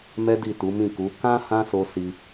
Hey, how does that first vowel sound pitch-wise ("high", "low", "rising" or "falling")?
high